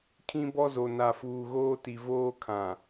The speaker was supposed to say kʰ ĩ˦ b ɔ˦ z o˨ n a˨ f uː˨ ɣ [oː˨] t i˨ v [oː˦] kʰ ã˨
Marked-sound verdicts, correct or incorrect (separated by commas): incorrect, correct